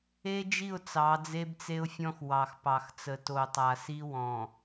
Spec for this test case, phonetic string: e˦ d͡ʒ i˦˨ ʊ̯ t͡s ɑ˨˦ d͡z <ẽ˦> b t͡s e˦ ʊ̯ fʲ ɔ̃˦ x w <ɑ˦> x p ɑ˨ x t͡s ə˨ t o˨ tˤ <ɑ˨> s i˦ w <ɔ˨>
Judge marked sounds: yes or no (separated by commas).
no, no, no, no